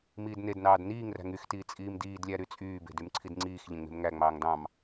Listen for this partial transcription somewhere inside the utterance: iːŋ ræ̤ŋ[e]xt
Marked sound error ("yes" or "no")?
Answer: yes